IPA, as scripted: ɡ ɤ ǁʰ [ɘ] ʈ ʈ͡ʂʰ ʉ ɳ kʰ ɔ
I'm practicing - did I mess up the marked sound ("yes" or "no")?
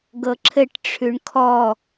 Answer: no